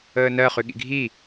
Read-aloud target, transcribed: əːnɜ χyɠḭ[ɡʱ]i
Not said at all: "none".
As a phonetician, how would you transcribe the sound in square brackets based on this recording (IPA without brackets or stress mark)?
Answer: ɡʱ